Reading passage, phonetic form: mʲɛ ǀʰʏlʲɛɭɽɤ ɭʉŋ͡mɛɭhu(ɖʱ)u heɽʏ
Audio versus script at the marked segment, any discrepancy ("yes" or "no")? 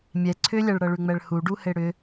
yes